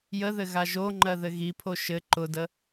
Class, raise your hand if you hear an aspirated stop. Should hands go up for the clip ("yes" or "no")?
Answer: yes